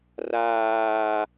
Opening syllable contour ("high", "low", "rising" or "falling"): high